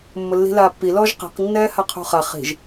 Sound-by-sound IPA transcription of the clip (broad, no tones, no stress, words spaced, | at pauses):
mːʊlːi̤laːpːi lɔʒqi̤q nːɛːhaqʰṳχa χi̤ʒ